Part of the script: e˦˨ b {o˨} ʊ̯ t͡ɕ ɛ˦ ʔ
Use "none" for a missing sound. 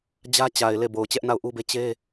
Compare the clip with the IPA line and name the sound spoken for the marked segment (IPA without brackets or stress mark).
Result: o˨